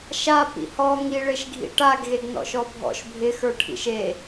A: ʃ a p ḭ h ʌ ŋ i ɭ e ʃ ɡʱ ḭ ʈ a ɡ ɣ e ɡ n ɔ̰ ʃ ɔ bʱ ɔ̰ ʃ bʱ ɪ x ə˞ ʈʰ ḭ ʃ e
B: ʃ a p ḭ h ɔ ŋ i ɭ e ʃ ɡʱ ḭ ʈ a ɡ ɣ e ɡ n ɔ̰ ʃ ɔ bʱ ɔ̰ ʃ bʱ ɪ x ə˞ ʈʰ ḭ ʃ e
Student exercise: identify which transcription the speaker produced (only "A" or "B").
B